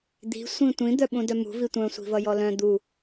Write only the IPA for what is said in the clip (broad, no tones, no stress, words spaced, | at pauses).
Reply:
d̪i̤ sʷĩtʷĩ d̪œɓũdœmṳ vitʷœ̃ sʷi̤vʌjɔlœ̃ d̪u